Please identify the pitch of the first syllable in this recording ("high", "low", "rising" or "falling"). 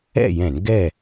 falling